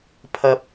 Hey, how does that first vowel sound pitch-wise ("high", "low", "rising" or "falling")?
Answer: low